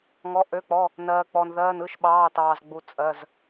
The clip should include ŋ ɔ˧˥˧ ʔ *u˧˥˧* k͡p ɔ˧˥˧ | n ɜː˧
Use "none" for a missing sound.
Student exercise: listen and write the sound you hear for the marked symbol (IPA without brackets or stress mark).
ø˧˥˧